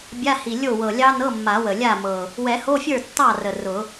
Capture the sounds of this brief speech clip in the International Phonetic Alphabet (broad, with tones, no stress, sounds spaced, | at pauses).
bʲ a˧˥˧ h i˨˩ lʲ o˥˩ w ɤ˨˩ lʲ ɑ˦˥ n ɤ˧˥˧ mː a˨˩˦ w ə˨˩ lʲ a˥˩ m ɤ˨˩ | w ɛ˨˩˦ h o˧˥˧ fʲ ə˞˥˩ tː ɑ˥˩ r ə˨˩ r ʊ˨˩˦